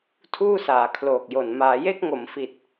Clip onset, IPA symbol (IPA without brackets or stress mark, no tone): tʰ